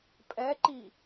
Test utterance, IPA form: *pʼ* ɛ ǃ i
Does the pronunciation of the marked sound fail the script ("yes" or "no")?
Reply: no